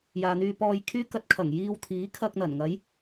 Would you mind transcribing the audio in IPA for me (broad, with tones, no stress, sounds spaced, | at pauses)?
j aː˨ n̪ yː˧ p ɔː˧ j kʰ yː˥ k ɐ˧ t̚ kʰ ɐ˨˩ ŋ j iː˧ w t̪ʰ iː˨˥ kʰ ɐ˧ k̚ n̪ ɐ˨˩ n ŋ ɐ˨˥ j